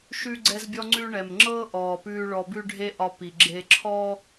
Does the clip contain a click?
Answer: yes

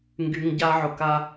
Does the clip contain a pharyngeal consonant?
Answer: yes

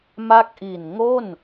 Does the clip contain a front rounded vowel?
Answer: no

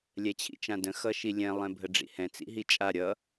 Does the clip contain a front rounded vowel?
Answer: no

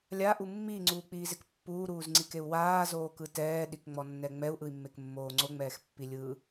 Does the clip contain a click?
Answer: yes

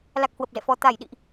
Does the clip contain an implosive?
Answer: yes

